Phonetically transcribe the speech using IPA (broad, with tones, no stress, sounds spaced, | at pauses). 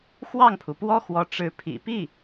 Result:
x w ɑ˥˩ ŋ pʰ u˩ p w ɔ˥ x w ɔ˧˥ ʈ͡ʂ ɻ̩˧˥ pʰ ḭ˨˩ p i˥˩